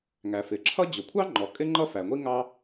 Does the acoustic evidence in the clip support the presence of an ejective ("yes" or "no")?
yes